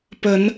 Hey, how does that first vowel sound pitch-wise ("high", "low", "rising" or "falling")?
rising